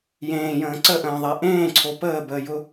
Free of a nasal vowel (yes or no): no